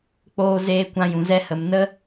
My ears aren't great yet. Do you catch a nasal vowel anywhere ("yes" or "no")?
yes